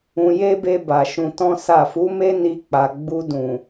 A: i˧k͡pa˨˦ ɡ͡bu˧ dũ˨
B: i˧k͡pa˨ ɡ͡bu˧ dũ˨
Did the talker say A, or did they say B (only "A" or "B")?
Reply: B